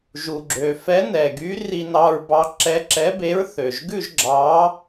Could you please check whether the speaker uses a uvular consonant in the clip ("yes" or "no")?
no